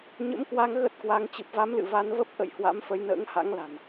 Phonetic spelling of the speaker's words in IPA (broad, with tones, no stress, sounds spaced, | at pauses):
ɲ ə̰˧˥ m k w a˧ ŋ ɣ ə˦˥ t̚ k w a˧ ŋ t͡ɕ ɨ˨˩ p̚ v a˨˦ m l ɨ̰˧˨ v a˧ n v ə˦˥ p̚ ʔ ə̰˧˨ j h w a̰˧˥ m f ə˨˦ j n ə̰ː˧˥ ŋ h a̰˧˥ ŋ l a̤˨˩ n